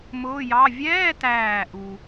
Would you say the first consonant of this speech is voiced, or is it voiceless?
voiced